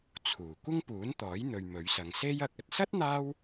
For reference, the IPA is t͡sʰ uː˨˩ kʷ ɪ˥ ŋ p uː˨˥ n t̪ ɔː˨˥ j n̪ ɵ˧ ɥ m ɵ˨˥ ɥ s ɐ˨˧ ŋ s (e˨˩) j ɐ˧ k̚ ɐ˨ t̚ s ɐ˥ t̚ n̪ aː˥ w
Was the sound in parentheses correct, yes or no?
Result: no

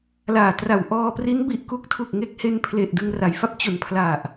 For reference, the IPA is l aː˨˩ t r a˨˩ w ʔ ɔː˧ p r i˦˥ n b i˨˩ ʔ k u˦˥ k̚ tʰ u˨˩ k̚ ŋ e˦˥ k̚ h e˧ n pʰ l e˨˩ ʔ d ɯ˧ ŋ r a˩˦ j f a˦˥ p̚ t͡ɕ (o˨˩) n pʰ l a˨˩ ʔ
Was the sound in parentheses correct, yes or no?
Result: yes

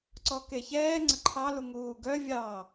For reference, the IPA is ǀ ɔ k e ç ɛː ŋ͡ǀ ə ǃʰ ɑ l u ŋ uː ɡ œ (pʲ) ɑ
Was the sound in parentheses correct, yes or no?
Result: no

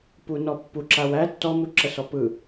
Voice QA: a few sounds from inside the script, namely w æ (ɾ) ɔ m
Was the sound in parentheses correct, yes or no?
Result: no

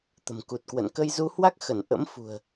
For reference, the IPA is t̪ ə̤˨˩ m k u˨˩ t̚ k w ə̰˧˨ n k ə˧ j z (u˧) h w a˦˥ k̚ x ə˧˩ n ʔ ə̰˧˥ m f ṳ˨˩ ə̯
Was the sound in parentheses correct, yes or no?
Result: yes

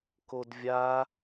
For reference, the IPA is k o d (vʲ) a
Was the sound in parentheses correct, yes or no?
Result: yes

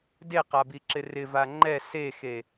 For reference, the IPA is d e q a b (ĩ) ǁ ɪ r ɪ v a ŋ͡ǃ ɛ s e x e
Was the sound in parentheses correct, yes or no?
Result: no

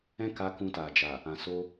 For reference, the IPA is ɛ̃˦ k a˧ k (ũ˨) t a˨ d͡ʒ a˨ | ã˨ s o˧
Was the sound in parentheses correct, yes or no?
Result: no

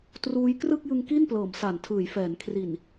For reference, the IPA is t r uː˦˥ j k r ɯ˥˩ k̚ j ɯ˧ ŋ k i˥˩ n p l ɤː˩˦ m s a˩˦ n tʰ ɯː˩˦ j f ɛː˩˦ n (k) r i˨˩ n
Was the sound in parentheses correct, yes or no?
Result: no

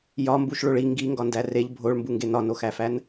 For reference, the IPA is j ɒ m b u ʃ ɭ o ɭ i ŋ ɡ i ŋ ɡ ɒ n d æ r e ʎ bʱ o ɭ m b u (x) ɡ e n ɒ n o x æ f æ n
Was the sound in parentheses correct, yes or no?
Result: no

